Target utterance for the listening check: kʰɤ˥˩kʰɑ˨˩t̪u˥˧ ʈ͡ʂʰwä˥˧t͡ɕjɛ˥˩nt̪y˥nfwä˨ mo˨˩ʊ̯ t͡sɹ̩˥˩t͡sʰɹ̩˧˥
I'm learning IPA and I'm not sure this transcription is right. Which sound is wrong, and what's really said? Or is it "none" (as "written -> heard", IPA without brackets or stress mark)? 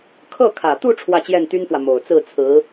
ɑ˨˩ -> ä˨˩